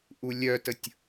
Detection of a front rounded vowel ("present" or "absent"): present